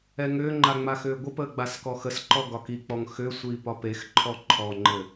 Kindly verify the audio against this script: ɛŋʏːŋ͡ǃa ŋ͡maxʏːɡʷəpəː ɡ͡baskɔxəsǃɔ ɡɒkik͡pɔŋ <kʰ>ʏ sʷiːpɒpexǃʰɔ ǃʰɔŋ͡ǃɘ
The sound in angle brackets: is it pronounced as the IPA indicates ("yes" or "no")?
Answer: no